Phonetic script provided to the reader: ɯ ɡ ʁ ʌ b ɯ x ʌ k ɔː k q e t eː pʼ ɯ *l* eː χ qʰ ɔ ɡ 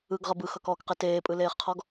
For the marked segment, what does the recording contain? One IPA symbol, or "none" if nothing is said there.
l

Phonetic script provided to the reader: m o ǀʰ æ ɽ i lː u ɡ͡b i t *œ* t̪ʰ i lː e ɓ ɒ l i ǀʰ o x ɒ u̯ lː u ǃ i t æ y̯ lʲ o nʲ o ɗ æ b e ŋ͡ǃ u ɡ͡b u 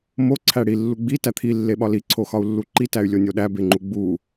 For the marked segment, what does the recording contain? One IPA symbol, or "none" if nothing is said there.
æ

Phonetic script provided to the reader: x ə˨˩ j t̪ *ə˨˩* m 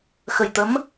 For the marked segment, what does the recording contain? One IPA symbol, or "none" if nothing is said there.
ə˨˦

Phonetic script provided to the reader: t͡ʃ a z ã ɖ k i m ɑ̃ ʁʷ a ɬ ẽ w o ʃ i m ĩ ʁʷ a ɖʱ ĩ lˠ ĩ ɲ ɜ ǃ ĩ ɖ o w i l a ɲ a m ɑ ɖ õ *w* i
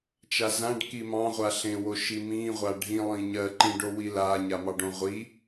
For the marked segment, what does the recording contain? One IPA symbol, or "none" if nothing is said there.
ʁʷ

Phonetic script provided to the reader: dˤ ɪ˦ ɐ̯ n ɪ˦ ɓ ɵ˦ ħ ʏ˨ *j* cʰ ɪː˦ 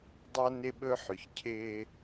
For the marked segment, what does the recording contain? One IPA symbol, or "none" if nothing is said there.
ç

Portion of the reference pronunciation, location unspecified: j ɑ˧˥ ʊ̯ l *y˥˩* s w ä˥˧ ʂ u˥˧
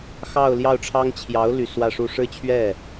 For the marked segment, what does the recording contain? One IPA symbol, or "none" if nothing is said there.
y˨˩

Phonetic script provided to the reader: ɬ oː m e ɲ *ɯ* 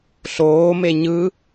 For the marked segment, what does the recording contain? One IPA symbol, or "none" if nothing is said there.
ɯ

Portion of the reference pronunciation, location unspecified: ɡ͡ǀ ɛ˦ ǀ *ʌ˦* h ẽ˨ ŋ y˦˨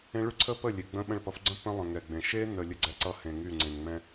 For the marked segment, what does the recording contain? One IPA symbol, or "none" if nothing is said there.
ʌ˦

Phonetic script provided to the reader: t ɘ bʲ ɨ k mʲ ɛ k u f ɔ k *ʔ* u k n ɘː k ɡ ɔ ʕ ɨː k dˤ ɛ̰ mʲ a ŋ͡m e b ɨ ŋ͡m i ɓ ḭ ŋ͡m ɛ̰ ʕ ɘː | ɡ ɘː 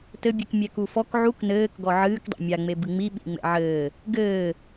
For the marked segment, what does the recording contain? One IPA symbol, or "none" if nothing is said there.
ʕ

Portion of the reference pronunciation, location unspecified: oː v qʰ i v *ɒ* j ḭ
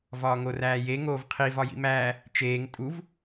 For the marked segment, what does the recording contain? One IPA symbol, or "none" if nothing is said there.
ɒ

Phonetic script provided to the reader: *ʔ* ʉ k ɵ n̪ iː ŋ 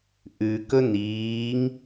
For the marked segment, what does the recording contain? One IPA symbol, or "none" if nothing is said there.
ʔ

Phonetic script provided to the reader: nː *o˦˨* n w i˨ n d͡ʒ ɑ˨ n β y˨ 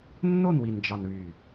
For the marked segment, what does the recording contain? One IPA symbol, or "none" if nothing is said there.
o˦˨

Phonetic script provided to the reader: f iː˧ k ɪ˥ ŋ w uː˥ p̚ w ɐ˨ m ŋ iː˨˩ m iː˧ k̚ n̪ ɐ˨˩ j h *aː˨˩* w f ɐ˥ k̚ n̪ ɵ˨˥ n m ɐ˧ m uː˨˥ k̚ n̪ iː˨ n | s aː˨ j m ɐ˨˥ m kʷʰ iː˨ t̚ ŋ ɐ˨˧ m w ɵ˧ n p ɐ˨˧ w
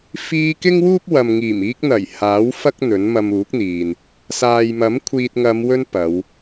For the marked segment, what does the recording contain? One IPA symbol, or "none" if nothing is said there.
aː˨˥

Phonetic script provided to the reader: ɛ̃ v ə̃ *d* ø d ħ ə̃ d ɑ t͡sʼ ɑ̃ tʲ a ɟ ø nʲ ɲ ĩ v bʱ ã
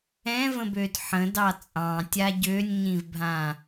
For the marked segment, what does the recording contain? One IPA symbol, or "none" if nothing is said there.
b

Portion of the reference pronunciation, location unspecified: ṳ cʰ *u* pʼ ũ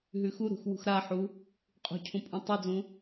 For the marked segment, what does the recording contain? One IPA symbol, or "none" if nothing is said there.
ũ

